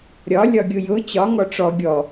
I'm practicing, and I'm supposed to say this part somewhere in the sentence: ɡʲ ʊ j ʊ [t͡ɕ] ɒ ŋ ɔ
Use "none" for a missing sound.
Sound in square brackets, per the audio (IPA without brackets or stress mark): t͡ɕ